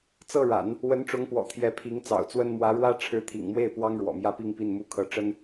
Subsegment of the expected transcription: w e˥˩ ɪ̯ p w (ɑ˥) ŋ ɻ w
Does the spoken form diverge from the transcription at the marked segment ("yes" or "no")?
no